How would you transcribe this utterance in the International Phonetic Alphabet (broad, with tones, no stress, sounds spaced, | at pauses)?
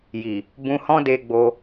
j i˨ | b ũ˧ h ɔ̃˦ d e˧ ɡ͡b o˧